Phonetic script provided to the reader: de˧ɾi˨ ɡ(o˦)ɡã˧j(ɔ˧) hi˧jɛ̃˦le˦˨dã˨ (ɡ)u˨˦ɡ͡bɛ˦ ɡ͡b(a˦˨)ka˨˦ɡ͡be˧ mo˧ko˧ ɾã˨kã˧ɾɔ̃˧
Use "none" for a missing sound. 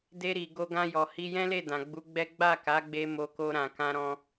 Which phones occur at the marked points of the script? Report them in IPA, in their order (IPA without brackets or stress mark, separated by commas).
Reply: o˧, ɔ˨, ɡ͡b, a˦˨